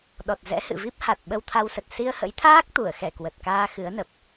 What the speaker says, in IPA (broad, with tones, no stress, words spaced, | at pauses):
ɗɔ˨˩t̚ zɛ̰˧˥hɨ̰˧˨vi˦˥p̚ ha˨˩t̚ ɓə˧wt̪ʰa˧wsə˨˩t̚ si˧ə̯hə̰˧˥jt̪ʰaː˦˥k̚ t̪u˧˩ə̯xɛ˧˩ kwə˨˩t̚kaː˧ xɨ˨˦ə̯nə˨˩p̚